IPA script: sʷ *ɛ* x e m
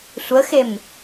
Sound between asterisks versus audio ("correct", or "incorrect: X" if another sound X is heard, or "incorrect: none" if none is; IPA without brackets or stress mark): incorrect: ə